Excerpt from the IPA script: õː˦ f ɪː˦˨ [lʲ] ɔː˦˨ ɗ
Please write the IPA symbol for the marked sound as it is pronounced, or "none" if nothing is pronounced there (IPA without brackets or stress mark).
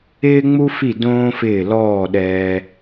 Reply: l